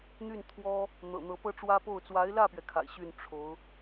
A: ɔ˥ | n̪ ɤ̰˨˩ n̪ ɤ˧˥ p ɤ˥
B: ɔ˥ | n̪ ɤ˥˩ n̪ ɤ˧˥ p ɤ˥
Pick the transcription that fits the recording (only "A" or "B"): A